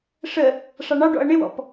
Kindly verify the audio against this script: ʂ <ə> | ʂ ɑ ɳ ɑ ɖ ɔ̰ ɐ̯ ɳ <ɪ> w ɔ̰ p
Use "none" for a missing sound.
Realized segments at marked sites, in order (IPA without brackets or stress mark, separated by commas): ə, ɪ